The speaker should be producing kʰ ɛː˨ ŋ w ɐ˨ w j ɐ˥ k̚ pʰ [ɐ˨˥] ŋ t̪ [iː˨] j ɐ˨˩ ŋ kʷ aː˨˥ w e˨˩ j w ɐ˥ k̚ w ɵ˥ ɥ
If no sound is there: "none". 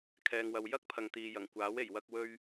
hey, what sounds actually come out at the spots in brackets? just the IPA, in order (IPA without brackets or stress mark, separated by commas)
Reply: ɐ˨, iː˨